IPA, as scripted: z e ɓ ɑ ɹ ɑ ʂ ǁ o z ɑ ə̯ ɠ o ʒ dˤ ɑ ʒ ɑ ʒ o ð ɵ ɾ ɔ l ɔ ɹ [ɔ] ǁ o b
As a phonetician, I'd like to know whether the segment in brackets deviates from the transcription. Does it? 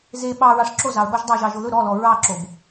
yes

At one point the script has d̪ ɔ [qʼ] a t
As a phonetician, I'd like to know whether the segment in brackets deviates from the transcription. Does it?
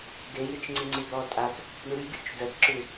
yes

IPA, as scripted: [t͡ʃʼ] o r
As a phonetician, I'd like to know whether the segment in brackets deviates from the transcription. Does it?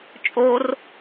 no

